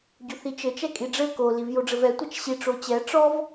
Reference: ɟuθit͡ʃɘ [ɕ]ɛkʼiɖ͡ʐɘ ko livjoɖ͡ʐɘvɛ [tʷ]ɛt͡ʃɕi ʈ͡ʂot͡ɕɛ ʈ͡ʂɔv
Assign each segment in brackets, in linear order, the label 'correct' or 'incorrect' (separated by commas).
incorrect, correct